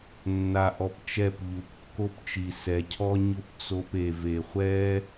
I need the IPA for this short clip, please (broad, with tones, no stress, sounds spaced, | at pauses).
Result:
nː a˧ ʔ ɔ˧ p t͡ʃ ɛ˦˨ p ʎ u˨ p kː o˦ p t͡ʃ i˨ s ɛ˨ cʰ ɔ˦ ɲ ʊ˦ p t͡s o˧ p e˨ v e˨ χʷ ɛ˦